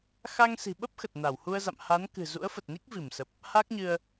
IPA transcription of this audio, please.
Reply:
x a˧ ŋ s i̤˨˩ ɓ ə˦˥ p̚ x ə˨˩ t̚ n a˧˩ w h u˧ ə̯ z a̰˧˨ m h a˨˦ n k ɨ̤˨˩ z ṵ˧˥ ə̯ f ə˨˩ t̚ n i˦˥ k̚ v i˧˩ m s ə˨˩ p̚ | h a˦˥ k̚ ɲ ɨ˧ ə̯

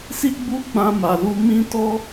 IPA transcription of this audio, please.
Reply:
s i˦ ɡ͡b u˦ ɡ͡b ã˦ m a˧ l u˦ m ĩ˦ t ɔ˦

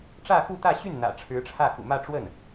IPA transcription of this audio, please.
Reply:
ʈ͡ʂ ä˥˧ x u˥˧ t̪ ä˥˧ ɕ y˥˩ n n̪ ä̰˨˩ ʈ͡ʂʰ ɻ̩˧˥ ʈ͡ʂʰ ä˥˩ x ṵ˨˩ m ä˥˧ ʈ͡ʂ w ə˥˩ n

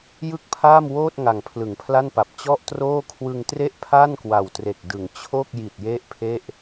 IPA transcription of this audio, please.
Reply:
j ɯ˥˩ k̚ pʰ aː˥˩ m w oː˥˩ t̚ ŋ a˨˩ ŋ pʰ l ɯ˩˦ ŋ pʰ l a˥˩ n p a˨˩ p̚ t͡ɕ ɔ˥˩ ʔ t r oː˥˩ kʰ w ɯ˧ ŋ t r e˥˩ ʔ pʰ a˥˩ n k w a˨˩ w t r e˨˩ k̚ d ɯ˩˦ ŋ t͡ɕʰ o˥˩ k̚ j i˨˩ t̚ j e˥˩ ʔ pʰ e˥˩ ʔ

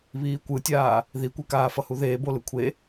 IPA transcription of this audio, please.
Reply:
β iː kʷ ɯ tʲ aː | ð i kʷ e k aː f ʌ h u ð eː b o l ɯ kʷʰ e

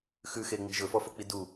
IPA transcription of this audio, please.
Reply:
x ʉ x e ŋ͡m i̤ ʒ ɵ f ɔ f o k͡p i d u

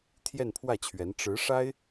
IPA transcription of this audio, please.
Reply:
t̪ʰ j ɛ˥˧ n pʰ w ä˥˩ t͡ɕʰ ɥ ɛ˧˥ n ʈ͡ʂ ɻ̩˧˥ ʂ a˥ ɪ̯

